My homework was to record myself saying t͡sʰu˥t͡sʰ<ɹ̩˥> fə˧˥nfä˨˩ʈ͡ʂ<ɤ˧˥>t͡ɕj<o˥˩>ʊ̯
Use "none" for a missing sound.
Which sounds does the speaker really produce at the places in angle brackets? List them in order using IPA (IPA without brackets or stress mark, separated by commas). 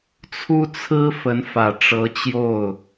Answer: ɹ̩˥, ɤ˧˥, o˥˩